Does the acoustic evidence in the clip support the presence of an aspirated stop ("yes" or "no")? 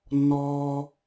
no